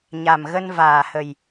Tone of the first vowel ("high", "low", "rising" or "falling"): low